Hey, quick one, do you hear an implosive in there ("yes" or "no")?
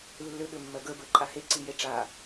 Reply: yes